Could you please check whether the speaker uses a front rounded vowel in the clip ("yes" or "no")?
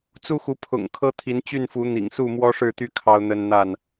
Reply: yes